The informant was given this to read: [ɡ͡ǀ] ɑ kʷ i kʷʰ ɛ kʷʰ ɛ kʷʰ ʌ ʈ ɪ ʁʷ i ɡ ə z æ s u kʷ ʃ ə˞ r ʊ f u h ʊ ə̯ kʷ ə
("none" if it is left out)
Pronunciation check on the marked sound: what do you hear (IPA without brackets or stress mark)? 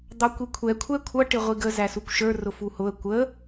d̪